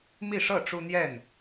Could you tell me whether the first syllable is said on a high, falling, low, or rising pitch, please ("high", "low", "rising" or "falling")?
falling